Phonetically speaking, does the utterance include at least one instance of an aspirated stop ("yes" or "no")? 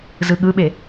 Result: no